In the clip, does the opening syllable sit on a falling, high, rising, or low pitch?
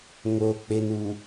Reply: low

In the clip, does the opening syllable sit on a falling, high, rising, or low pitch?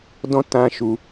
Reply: high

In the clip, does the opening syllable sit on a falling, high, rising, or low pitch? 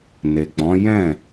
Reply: low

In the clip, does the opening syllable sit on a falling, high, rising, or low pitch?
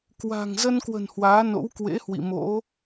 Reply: low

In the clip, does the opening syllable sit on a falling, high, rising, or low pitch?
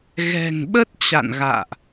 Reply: low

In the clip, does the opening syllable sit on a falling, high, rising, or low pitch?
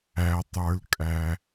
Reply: low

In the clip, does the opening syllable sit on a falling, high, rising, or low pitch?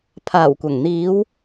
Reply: low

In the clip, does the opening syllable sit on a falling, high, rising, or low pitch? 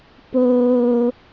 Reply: low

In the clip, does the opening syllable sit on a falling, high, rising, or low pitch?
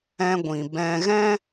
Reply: high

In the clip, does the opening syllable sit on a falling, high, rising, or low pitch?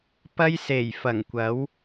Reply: high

